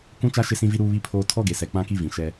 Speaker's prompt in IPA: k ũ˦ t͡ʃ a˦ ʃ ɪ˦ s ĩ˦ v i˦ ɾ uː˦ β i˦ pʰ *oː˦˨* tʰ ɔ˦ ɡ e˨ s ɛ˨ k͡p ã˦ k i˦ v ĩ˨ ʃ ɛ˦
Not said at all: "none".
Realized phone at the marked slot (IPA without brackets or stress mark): oː˦